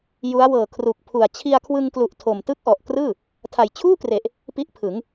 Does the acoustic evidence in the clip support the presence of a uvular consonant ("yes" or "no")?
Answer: no